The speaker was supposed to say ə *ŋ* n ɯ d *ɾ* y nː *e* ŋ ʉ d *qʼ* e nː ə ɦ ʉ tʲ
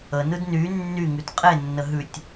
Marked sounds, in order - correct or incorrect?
incorrect, incorrect, incorrect, correct

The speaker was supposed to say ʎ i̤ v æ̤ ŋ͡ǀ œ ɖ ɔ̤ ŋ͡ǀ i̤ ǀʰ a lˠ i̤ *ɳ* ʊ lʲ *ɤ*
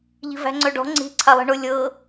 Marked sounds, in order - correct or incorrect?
correct, correct

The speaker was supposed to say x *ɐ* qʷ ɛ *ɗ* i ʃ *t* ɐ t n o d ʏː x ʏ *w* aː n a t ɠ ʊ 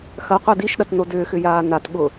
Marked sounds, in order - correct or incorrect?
correct, incorrect, incorrect, incorrect

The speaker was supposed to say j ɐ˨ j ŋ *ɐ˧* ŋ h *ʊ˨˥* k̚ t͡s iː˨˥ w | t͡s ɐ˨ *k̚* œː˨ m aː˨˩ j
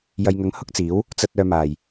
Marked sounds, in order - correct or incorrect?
incorrect, incorrect, incorrect

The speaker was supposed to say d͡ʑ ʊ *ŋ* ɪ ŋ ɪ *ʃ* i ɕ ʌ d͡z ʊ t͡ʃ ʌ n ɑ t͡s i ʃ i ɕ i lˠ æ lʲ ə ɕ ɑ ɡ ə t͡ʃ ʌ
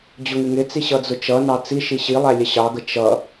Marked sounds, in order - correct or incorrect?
correct, incorrect

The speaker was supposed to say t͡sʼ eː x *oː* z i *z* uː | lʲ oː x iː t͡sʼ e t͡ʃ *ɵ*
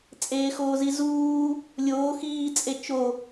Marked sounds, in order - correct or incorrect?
correct, correct, incorrect

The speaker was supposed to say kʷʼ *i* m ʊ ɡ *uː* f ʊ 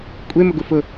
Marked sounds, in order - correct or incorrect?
incorrect, incorrect

